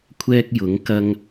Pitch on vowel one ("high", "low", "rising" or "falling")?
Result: high